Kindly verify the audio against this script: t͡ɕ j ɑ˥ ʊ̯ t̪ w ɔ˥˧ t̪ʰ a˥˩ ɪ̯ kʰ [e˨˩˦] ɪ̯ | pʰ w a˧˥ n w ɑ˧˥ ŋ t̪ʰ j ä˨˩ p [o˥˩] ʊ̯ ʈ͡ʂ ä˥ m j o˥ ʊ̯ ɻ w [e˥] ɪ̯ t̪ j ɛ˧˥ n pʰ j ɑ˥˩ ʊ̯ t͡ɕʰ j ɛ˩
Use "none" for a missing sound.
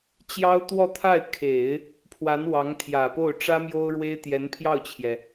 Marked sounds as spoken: e˨˩˦, o˥˩, e˥

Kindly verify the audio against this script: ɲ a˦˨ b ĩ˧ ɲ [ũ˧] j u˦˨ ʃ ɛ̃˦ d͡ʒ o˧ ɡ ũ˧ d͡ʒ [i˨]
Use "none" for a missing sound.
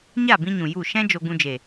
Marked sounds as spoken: ũ˨, e˨

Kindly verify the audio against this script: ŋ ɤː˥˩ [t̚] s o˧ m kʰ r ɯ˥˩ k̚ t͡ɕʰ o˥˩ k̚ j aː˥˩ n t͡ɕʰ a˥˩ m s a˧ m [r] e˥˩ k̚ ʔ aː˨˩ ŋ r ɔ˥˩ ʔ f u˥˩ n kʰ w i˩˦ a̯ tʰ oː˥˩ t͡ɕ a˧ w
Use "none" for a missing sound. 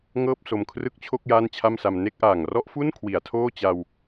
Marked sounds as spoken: p̚, n

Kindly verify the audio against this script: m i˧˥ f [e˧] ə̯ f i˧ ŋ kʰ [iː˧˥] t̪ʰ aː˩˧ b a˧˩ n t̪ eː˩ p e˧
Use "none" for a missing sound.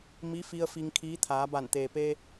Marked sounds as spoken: i˧, iː˧˥

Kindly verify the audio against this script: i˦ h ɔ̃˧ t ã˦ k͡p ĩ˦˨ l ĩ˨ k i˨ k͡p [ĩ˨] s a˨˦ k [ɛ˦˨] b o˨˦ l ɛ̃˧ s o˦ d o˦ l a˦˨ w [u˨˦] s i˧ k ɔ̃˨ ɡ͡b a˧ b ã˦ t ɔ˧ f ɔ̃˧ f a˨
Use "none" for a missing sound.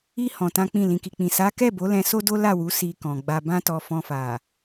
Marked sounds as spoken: ĩ˨, ɛ˦˨, u˨˦

